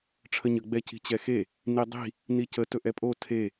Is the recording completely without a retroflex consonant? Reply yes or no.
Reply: no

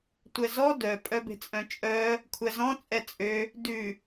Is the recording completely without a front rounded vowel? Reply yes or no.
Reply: no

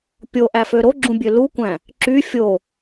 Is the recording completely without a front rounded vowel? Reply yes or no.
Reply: no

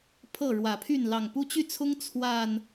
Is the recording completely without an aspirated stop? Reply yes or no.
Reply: no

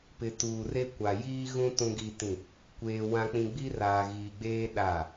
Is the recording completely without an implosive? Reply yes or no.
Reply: no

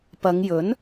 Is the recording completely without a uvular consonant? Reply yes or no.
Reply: yes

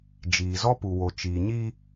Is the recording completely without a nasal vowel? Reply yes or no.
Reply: yes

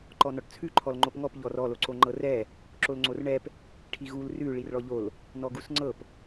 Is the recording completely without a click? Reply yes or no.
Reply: no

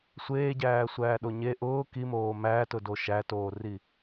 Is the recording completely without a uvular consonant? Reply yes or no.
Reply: yes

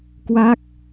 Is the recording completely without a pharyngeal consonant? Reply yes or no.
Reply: yes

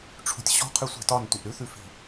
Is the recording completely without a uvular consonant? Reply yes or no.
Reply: no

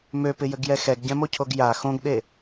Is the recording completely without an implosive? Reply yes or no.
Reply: no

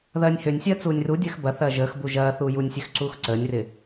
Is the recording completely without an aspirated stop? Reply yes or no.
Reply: yes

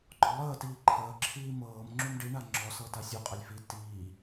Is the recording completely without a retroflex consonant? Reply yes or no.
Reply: no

